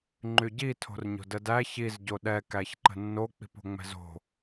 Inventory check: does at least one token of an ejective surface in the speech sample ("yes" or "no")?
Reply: no